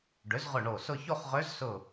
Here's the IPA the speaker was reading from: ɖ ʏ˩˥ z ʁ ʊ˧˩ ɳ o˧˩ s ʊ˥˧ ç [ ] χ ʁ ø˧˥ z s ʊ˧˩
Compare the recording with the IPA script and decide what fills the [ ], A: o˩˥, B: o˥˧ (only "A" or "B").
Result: B